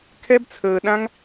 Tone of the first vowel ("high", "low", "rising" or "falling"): high